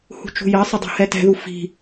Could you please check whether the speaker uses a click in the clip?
no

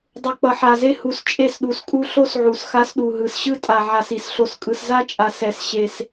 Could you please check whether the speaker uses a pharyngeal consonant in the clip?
yes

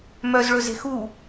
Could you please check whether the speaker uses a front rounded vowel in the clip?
yes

